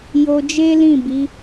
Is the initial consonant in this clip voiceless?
no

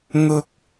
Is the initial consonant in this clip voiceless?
no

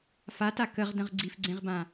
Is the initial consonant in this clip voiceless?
yes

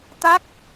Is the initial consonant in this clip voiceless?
yes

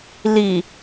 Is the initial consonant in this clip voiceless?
no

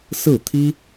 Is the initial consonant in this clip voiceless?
yes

